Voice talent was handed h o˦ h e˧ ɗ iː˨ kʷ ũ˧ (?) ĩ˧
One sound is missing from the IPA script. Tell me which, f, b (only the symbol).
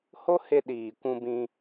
b